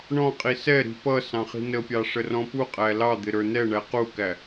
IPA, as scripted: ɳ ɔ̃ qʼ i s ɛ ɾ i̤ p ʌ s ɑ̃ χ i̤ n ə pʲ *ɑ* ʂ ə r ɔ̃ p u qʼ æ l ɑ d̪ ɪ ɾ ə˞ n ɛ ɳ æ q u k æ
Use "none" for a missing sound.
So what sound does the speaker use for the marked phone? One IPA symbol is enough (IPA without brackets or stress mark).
ɑ